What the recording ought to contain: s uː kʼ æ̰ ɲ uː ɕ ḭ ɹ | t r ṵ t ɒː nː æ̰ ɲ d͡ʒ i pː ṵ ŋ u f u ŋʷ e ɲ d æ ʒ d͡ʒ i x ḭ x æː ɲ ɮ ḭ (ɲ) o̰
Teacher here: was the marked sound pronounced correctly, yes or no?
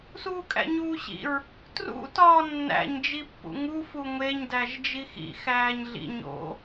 yes